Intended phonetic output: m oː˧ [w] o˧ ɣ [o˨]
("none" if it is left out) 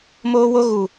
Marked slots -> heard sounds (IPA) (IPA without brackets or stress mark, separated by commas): w, u˨